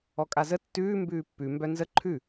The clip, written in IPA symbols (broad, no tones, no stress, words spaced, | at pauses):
ɔkʼazə tːʉː mbʉːpːʉ mbœnzə ǃʰʉ